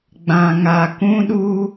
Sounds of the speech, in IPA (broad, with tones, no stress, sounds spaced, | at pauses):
ɡ͡b ã˨ ŋ a˨ k ũ˦ ɗ u˦